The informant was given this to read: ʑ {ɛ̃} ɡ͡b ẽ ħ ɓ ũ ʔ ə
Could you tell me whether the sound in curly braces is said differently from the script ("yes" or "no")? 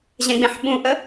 no